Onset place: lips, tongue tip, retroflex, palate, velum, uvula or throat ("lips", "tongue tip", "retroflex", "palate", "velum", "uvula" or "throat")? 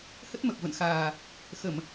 throat